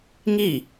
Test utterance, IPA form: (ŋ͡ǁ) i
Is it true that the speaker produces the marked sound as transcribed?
no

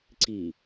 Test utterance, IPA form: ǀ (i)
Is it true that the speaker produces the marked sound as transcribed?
yes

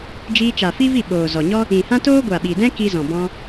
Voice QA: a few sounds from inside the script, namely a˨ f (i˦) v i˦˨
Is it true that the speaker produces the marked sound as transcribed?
yes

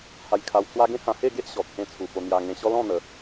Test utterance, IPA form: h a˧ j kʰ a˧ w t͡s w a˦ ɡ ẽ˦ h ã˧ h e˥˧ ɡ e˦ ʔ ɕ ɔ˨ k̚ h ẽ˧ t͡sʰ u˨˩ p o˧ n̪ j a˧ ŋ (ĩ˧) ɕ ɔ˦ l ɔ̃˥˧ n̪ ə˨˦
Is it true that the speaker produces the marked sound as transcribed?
no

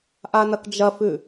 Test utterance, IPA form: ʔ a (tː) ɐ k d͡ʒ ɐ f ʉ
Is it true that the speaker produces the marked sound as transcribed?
no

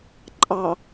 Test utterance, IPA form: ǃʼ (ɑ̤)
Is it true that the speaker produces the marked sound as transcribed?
no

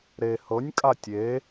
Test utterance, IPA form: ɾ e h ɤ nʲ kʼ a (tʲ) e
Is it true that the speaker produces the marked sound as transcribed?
yes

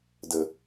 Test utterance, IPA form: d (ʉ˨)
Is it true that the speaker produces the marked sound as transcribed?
no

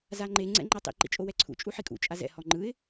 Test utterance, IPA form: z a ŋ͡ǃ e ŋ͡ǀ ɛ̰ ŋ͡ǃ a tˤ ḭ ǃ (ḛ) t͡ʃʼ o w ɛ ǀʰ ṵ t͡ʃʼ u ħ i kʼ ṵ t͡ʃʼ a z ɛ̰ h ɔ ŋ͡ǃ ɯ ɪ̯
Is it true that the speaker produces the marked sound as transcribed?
no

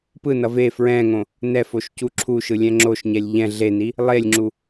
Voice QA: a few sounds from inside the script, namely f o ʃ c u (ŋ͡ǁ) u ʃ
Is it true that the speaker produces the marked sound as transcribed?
no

